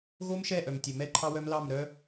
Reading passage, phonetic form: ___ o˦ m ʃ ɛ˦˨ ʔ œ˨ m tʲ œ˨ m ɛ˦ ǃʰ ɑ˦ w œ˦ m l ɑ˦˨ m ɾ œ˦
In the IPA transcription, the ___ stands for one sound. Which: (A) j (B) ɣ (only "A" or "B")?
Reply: B